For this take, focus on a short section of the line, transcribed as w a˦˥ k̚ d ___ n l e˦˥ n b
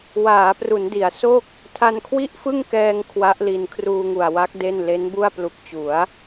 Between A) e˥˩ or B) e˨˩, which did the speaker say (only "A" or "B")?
A